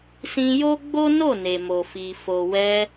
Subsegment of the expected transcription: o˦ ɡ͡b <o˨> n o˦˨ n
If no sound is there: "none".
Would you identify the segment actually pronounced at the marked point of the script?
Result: o˦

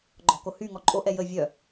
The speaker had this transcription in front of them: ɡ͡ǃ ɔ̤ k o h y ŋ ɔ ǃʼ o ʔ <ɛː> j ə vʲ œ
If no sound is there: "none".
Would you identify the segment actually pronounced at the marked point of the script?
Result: ɛ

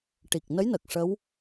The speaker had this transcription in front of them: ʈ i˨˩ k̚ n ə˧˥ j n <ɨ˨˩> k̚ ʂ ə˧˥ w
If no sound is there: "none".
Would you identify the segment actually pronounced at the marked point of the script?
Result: ə˨˩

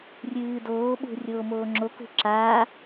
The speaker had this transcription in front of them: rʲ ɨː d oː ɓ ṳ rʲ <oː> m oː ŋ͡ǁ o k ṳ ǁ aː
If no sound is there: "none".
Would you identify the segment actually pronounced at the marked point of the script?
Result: oː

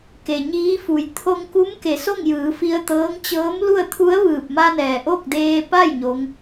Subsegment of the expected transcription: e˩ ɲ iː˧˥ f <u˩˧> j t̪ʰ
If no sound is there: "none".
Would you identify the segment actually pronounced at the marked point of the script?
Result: u˩˧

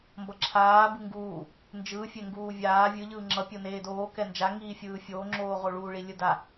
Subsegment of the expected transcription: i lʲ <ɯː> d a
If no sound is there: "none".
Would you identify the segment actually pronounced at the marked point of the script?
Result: ɯ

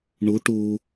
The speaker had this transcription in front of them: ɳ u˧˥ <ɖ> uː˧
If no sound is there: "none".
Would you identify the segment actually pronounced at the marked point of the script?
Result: ʈ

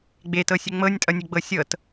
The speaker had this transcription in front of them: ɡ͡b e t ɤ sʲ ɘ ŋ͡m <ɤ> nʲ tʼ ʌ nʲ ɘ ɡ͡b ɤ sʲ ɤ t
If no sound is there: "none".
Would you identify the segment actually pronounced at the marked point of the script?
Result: ɤ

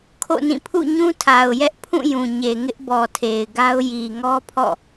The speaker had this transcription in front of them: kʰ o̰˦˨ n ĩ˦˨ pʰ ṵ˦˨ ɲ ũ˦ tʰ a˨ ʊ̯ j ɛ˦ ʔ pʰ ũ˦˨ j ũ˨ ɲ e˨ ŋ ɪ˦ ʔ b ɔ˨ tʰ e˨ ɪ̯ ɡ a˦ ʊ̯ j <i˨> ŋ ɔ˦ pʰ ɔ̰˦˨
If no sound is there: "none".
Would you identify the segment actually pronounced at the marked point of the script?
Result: i˨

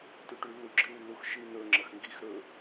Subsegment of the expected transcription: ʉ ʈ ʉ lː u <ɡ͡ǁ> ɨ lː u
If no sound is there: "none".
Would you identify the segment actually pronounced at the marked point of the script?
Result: ɡ͡ǁ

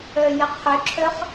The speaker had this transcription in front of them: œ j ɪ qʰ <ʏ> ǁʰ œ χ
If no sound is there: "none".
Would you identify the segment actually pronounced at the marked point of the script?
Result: ʏ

